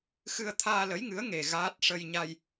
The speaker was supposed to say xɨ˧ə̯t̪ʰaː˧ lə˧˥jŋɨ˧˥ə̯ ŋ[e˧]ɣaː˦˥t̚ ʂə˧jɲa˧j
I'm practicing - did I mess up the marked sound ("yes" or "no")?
no